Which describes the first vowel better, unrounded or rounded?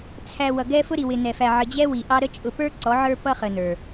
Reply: unrounded